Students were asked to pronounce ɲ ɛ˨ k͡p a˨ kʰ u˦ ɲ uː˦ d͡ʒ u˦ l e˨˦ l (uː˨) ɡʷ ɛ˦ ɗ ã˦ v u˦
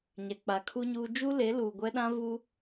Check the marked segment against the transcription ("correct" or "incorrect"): correct